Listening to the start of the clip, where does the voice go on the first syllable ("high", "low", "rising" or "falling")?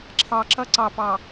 low